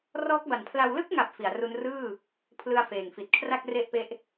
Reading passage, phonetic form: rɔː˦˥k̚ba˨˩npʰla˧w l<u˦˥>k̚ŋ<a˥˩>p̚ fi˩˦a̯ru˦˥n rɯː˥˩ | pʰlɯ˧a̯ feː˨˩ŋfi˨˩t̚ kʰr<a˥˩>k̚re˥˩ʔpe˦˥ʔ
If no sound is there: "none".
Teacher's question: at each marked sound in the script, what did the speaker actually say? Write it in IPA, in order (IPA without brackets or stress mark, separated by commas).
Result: ɯ˦˥, a˨˩, a˥˩